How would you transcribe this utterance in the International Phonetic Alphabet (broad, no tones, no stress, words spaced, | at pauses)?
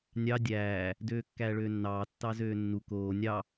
nʲɑ dʲæː | døːkːæːɭøːnːɑː tːɑzøːnːu koː nʲɑ